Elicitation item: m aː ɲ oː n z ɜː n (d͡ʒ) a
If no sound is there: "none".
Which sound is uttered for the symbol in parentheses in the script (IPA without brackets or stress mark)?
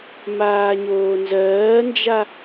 d͡ʒ